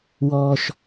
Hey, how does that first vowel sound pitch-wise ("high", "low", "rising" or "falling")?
low